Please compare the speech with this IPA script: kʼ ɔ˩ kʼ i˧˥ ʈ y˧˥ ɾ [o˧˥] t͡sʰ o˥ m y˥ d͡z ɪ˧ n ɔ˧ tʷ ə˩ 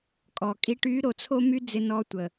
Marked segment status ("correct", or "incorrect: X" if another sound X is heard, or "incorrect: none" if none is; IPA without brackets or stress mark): incorrect: o˩˧